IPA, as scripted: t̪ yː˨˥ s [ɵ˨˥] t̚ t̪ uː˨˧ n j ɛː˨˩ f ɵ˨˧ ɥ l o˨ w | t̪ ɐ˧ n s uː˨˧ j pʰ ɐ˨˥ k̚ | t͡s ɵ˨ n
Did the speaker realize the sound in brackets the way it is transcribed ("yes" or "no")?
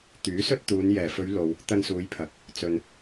no